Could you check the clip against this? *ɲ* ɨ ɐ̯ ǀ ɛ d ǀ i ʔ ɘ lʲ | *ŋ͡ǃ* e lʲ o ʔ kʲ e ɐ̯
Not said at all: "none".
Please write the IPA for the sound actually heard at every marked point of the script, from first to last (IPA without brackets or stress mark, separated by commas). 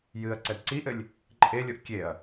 j, ǃʼ